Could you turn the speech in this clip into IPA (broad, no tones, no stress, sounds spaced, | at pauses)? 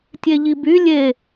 tʲ e ʎ i b y lʲ e